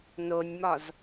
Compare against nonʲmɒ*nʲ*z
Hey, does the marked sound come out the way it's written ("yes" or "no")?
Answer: no